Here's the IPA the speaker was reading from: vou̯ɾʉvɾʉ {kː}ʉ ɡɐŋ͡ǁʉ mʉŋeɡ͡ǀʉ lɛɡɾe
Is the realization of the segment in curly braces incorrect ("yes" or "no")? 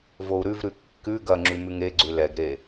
no